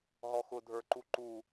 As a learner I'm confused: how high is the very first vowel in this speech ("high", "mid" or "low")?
mid